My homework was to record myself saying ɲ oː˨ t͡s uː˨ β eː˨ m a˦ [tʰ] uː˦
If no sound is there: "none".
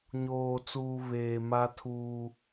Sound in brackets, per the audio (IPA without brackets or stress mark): tʰ